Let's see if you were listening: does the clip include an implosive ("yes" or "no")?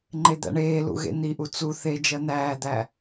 no